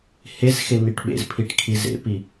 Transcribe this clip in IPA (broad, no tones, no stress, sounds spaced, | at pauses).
h e z x e n i ʈ ɓ ḛ z pʰ i ʈ kʰ i z ḛ p i